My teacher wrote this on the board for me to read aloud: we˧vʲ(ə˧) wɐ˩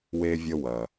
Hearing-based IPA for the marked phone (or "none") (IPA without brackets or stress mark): ə˧